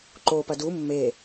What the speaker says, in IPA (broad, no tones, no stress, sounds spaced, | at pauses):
ǃ o p ɐ d u mː e